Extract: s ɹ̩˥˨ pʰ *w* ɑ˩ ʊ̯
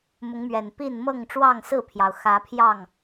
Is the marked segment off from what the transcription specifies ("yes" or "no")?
yes